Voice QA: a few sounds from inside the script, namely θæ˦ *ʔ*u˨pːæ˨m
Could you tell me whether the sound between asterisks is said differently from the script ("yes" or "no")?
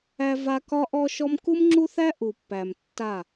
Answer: no